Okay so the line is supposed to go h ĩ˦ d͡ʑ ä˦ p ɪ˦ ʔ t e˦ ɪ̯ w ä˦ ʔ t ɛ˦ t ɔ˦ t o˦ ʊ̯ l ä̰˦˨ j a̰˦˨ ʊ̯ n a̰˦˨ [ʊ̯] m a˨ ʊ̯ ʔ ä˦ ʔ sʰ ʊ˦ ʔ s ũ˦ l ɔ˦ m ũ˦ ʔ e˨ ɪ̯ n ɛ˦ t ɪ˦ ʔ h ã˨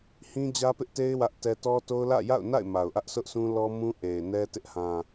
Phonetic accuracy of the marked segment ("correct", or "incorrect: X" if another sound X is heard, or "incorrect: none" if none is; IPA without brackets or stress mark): incorrect: ɪ̯